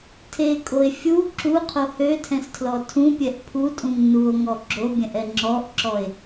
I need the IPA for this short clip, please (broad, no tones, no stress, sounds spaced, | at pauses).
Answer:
tʰ e kʼ o e̯ fʲ u ǁ u qʰ o h ø tʰ ɛ̃ s tʰ l ɔ tʰ ũ pʲ ɛ ʔ pʰ u tʼ ũ ŋ n u o̯ ŋ ɔ ɡ͡ǁ o bʲ ɛ̃ ʔ ɛ ŋ͡ǁ ɔ ʔ ǁ ɔ e̯